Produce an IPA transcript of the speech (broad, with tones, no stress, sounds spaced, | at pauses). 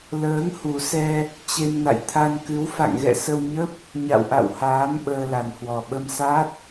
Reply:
l əː˨˦ ŋ h u˨˩ s ɛ˧ | t͡ɕ e˧ m n a̰˧˨ j t̪ʰ a˧ n k ɨ˨˦ w f a̰˧˨ ŋ ɣ ɛ̰˧˨ s ə˧ w ɲ ə˦˥ p̚ | ɲ a̰˧˨ w ʔ a̰˧˨ w h aː˨˦ m ɓ əː˧ l a˨˩ n h w ɔ˨˩ ɓ ə˧ m s a˦˥ t̚